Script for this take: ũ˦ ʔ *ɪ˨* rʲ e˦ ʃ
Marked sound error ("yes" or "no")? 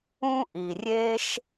yes